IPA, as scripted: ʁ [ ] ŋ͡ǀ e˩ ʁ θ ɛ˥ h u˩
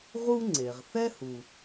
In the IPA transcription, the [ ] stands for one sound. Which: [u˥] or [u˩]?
u˥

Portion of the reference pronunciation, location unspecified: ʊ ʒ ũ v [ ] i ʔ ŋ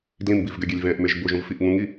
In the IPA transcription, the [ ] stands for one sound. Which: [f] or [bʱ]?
f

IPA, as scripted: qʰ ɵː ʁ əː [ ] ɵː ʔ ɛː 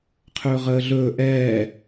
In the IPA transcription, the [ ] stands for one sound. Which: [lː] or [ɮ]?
ɮ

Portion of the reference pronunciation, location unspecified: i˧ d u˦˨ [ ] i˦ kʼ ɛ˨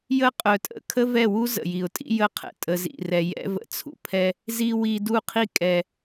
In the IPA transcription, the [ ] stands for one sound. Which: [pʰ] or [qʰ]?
qʰ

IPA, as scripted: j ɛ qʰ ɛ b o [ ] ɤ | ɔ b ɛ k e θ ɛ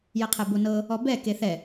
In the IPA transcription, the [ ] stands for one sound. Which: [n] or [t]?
n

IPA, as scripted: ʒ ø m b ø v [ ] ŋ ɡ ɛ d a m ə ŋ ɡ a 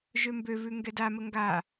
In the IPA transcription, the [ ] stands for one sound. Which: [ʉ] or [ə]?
ʉ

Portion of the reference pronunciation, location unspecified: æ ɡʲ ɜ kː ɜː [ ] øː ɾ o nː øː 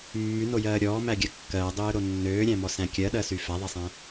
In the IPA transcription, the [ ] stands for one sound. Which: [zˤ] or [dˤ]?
dˤ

